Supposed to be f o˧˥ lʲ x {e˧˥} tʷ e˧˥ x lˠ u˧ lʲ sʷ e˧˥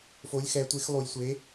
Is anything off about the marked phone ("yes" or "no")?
yes